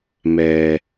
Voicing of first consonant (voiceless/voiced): voiced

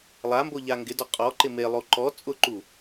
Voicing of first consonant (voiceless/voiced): voiced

